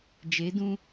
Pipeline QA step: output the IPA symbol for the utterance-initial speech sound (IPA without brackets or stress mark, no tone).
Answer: d͡ʒ